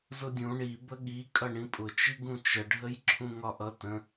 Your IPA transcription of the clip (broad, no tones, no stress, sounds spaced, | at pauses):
z ʊ dʲ ũ ɳ i b ə ɠ i kʼ ʌ ɳ ĩ pʼ ʊ t͡ʃ i ɡ ũ t͡ʃ ə ɖʱ ə j ǁʰ ũ ŋ ɒ ʔ ʌ t ə̃